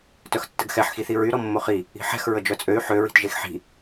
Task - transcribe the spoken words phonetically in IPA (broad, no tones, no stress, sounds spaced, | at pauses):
t œ x tː ə ɡ x ɛ ħ x i θ i ɹ y ɾ ɔ mː o χ i | i̤ ħ ɛ̤ x ɹ ə d͡ʒ œ t͡sʼ ø y̯ ħ ø ɹ i̤ t ʒ e x ħ i̤